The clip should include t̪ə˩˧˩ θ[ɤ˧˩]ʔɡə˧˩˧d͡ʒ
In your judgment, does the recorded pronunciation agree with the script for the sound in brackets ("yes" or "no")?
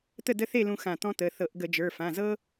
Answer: no